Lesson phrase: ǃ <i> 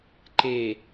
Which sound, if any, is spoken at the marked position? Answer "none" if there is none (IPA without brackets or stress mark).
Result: e